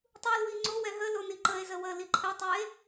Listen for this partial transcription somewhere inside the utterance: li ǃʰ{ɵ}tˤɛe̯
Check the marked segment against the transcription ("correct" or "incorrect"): incorrect